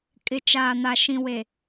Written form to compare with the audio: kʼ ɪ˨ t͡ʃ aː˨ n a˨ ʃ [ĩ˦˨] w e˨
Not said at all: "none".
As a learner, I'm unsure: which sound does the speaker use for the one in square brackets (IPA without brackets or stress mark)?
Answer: ĩ˨